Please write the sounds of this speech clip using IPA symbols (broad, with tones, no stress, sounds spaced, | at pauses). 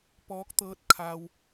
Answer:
p ɔː˧˥ k̚ t̪ ɤː˧˥ t̚ kʰ a˧ w